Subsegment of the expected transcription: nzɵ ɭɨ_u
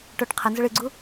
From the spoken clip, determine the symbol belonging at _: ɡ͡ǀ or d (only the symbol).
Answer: ɡ͡ǀ